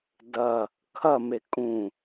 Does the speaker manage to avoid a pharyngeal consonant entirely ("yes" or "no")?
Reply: yes